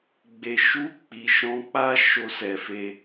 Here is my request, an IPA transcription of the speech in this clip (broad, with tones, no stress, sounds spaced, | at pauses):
ɡ͡b e˨ ʃ u˧ k͡p i˨ ʃ ɔ̃˧ k͡p a˦ ʃ o˧ s ɛ˨ f e˧